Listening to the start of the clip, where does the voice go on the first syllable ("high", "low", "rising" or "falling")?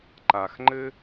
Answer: low